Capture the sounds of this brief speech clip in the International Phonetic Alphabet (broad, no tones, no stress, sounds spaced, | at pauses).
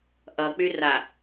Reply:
ʔ ʌ k͡p y r a